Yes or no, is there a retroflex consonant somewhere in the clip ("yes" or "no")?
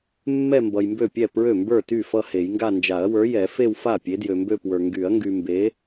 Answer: no